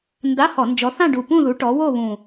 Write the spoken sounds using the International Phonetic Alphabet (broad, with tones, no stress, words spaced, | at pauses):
nda˧˥˧hɔ˧˩˧nd͡ʒɔ˨˦ θã˥˧ɖu˨˩pũ˥˧ðu˨˦ ʈɔ˨˦wo˥˧βũ˨˩